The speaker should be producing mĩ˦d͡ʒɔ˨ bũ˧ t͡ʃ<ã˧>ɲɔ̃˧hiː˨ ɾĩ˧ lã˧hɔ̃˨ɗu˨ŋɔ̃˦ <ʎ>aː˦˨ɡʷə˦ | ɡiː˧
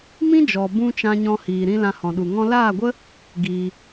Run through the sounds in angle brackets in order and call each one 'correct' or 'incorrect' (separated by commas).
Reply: correct, incorrect